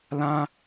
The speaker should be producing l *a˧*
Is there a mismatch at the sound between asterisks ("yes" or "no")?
yes